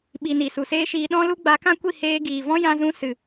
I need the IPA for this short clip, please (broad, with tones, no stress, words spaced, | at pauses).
ɓi˨ ni˨su˨seː˦ʃiː˧ ɗɔ̃˦lu˦ ɡ͡ba˨˦kã˦kʷi˦˨heː˧ ɡiː˨ vɔ̃˦jã˧zũ˧ sɨ˨